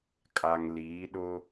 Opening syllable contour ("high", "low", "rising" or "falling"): low